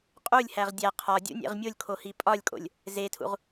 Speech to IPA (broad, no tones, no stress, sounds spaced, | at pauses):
qʼ u lʲ h æ ʁ dʲ æ qʰ ɒ dʲ ṵ nʲ ḛ ʁ mʲ o lʲ kʰ o h i pʼ ɒ lʲ kʼ o̰ lʲ | z e tʰ ṵ ʁ